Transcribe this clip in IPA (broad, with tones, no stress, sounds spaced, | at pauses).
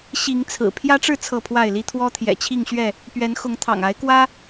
ɕ i˨˦ ŋ t͡sʰ ɹ̩˨˩ pʰ j ä˦ ʈ͡ʂ ɻ̩˥˨ t͡sʰ ɤ˥˨ pʰ w a˥˨ ɪ̯ l i˦ t̪ʰ w ɔ˦ t̪ʰ j ɛ̰˨˩ t͡ɕʰ i˥˨ ŋ ɕ ɥ ɛ˥˨ | p ɥ ɛ˨˦ n x ʊ˨˦ ŋ t̪ʰ ɑ̰˨˩ ŋ a˨˦ ɪ̯ k w ä˦